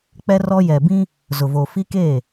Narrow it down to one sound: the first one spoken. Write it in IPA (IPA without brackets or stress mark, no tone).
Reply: k͡p